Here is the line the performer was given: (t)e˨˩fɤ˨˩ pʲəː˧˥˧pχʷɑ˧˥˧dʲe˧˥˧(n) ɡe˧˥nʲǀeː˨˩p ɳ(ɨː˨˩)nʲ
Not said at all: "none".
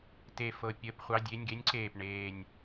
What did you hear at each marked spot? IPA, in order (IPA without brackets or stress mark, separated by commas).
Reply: t, nʲ, eː˨˩